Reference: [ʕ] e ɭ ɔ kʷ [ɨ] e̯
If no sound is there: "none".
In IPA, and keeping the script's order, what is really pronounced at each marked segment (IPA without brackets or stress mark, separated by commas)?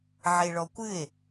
ʕ, ɨ